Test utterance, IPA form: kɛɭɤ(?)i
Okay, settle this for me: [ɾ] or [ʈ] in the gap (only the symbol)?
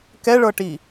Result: ʈ